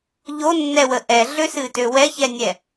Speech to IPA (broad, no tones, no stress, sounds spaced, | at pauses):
ʎ o nː ɛ w ə ʔ ɛ ɮ ø s ɨ t ø w ɛ ç ɛ nʲ ɛ